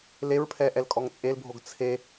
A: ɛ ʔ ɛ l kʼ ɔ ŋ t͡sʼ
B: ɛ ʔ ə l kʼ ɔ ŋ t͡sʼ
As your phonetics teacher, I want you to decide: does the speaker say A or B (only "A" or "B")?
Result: A